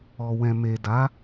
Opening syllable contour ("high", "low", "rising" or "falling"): low